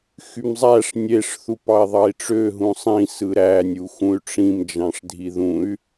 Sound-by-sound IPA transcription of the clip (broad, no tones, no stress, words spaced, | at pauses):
xymzˤæʂ nʲeʂ θupɑi̯ðˤɑi̯ʈ͡ʂø ɦũsˤĩ sɯɾæ nʲuxũy̯ʈ͡ʂĩm d͡ʒɑ̃ʂdʱiðũy̯